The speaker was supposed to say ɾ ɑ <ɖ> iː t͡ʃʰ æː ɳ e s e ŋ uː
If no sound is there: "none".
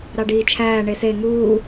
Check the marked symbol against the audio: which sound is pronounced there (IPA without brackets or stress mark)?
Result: ɖ